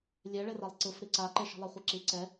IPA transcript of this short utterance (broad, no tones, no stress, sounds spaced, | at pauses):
lʲ ɛ ɭ e r a lˠ ǀ ɯ f ɾ i ǀ a ǃ e ʃ i̤ lˠ ɛ χʷ i ǁ i ǀ ɛ